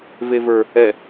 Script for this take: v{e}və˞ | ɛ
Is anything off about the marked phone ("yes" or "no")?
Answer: no